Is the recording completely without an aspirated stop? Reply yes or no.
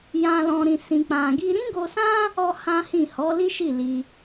yes